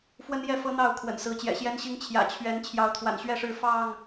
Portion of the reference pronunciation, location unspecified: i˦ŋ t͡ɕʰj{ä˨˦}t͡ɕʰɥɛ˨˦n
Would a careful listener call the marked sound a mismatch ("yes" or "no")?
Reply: yes